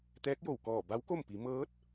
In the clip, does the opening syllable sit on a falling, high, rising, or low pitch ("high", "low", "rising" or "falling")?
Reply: rising